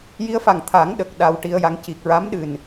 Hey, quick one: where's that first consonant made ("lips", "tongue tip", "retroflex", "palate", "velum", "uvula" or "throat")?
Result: palate